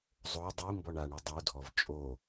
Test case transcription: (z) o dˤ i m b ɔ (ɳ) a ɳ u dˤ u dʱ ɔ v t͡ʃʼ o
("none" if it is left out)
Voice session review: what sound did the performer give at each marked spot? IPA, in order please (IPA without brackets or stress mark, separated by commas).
zˤ, ɳ